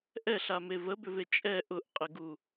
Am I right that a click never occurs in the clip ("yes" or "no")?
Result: yes